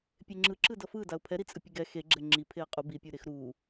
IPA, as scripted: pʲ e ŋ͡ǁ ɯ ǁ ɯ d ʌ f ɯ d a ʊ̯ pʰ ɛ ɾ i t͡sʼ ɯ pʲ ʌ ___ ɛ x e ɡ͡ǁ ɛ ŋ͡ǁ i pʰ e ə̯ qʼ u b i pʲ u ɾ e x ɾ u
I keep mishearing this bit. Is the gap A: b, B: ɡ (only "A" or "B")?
B